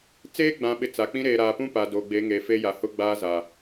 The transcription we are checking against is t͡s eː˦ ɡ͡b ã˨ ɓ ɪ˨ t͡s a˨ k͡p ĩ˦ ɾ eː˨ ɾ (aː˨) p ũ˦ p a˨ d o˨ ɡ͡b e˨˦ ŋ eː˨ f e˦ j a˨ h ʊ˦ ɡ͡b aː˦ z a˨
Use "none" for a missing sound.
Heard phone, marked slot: aː˨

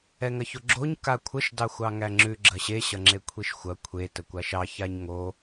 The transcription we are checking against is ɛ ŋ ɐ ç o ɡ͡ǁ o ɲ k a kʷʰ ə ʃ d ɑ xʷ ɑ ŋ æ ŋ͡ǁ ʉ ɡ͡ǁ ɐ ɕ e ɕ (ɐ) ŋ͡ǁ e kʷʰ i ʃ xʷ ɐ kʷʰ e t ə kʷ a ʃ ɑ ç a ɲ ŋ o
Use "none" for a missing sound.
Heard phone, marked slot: ɐ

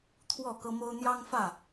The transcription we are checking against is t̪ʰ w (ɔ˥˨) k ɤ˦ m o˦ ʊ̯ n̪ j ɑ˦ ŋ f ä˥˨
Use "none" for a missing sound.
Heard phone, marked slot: ɔ˥˨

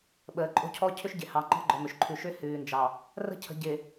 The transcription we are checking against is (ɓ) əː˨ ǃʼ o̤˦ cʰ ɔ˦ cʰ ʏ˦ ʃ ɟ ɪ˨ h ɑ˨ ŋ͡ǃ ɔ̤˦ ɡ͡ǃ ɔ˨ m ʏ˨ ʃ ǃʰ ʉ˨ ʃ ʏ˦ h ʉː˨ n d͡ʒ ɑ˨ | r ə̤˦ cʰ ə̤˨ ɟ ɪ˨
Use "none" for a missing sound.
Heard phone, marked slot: ɓ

